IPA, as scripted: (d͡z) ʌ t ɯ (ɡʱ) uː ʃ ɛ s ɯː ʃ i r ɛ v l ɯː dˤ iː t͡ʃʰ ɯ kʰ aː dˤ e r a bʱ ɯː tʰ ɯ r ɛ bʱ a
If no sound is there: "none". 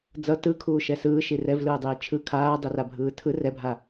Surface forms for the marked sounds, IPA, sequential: d͡z, kʰ

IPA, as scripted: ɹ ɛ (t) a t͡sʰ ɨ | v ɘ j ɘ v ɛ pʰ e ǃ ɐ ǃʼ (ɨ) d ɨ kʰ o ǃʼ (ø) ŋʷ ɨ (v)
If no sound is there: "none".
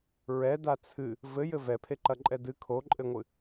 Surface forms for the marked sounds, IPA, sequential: d, ɛ, ɘ, none

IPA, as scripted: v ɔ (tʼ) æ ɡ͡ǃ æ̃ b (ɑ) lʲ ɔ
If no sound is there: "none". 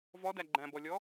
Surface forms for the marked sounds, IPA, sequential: d, ɔ

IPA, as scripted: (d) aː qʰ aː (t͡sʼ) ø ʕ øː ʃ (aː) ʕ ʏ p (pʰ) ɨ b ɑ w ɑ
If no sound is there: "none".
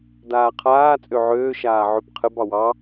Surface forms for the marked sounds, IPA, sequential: d, t͡sʼ, aː, qʰ

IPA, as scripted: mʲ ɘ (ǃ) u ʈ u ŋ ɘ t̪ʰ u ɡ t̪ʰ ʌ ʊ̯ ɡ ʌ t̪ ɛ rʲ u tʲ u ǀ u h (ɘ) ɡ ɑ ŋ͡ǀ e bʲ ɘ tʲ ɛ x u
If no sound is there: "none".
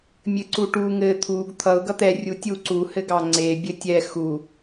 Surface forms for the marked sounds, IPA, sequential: ǀ, ɘ

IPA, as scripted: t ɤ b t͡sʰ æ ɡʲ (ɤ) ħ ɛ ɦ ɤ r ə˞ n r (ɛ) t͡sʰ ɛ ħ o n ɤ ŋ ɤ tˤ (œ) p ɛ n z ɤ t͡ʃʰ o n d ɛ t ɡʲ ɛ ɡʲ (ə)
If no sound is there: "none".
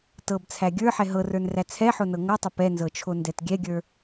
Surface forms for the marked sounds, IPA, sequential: ə˞, æ, ə, ə˞

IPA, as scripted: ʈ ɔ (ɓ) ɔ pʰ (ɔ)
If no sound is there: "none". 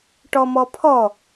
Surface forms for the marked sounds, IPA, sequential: m, ɔ

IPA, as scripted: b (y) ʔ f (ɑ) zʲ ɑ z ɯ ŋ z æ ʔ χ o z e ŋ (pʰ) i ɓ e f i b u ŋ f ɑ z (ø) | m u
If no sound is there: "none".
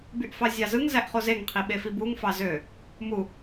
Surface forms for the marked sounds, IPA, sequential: y, ɑ, qʰ, ø

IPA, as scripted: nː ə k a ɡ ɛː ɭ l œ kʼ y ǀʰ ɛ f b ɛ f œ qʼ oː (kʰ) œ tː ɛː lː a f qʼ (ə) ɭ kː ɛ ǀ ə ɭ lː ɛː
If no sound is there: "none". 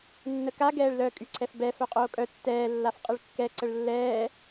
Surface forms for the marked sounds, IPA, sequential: kʼ, ə

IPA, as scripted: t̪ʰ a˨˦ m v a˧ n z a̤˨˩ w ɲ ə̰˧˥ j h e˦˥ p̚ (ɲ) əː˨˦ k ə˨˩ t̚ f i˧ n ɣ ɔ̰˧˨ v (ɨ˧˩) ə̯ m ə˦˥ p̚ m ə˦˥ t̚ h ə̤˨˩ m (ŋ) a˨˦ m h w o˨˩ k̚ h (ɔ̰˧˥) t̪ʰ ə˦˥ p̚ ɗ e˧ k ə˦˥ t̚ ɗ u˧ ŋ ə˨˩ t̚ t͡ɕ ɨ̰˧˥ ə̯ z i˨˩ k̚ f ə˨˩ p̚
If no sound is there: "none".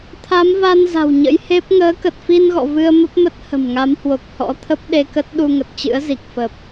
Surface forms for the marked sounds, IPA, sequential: ŋ, ɨ˧, ŋ, ɔ̰˧˥

